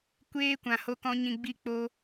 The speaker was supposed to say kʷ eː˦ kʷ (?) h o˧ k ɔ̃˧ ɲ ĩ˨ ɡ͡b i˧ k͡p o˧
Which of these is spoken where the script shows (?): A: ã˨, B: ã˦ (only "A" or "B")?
A